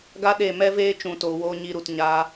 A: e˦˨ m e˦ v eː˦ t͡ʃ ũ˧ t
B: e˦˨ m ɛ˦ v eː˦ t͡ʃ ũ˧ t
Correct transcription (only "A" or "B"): B